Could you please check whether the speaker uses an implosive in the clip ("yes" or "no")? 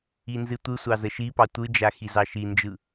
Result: no